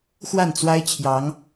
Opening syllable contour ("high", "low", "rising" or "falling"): falling